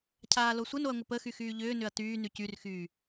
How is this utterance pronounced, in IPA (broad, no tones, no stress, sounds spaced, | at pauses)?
cʰ aː l o sʷ ə n o ɐ̯ ŋʷ ə p ə x y x yː ʎ ʏː n ʏ ɐ̯ t yː n y c y r x yː